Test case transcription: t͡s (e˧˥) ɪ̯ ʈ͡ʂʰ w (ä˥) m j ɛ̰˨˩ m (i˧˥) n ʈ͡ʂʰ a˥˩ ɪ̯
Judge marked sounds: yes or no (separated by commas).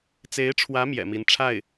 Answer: yes, no, yes